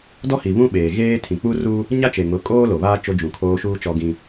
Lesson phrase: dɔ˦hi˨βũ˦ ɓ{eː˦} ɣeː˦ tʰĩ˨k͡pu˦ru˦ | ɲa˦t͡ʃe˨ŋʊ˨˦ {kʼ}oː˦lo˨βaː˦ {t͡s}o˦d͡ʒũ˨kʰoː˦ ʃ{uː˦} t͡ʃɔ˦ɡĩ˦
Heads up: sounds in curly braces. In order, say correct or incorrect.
incorrect, correct, incorrect, correct

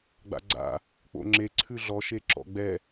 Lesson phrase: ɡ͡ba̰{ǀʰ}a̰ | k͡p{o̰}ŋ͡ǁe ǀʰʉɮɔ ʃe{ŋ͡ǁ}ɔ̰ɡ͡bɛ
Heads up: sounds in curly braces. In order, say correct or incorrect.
incorrect, correct, incorrect

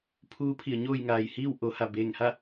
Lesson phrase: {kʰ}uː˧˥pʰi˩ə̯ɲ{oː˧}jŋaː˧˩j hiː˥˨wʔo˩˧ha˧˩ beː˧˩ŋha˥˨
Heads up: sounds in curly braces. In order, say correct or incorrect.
incorrect, incorrect

